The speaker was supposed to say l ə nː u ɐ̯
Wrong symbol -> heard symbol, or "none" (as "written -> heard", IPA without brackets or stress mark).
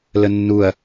none